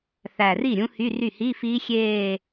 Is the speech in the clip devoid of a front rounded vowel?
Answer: no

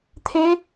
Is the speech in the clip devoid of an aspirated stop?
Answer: no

